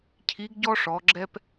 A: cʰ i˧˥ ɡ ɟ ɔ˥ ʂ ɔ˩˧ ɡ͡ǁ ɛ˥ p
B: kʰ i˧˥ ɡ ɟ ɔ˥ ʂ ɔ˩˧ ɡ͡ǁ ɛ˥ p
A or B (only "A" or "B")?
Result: A